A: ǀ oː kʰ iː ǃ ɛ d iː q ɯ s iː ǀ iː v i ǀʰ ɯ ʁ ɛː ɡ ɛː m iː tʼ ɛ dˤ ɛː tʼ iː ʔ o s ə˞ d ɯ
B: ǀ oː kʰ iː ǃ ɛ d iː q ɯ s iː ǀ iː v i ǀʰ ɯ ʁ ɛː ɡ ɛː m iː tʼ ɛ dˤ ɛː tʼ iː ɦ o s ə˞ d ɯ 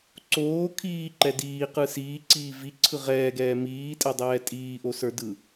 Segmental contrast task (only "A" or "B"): A